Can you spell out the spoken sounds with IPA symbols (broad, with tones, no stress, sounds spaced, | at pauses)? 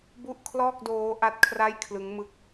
b u˥˩ ʔ kʰ l ɔː˥˩ k̚ d oː˦˥ ʔ a˦˥ t̚ kʰ r a˥˩ j kʰ l ɯ˦˥ ŋ m ɯ˦˥ k̚